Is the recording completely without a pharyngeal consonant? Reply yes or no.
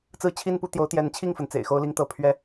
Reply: yes